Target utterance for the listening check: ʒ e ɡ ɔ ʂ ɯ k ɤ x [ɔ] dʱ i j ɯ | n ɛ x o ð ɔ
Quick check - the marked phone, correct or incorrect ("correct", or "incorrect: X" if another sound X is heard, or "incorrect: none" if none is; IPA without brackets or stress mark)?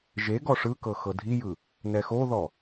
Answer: incorrect: ɤ